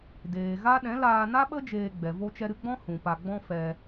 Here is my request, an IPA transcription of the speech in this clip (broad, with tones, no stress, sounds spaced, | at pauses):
d eː˨ ɣ a˦ ɗ ɛ̃˨˦ l aː˧ n a˦ ɓ ə˦ d͡ʒ eː˧ ɡ͡b ɛ˨ v o˧ t͡ʃ ɛ˧ ɾ ɨ˧ ɡ͡b ɔ̃˦ h ũ˨ p a˧ ɡ͡b ɔ̃˦ f ɛ˧